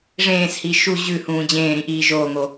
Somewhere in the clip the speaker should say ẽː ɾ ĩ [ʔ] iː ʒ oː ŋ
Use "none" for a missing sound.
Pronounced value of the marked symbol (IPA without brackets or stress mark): ʔ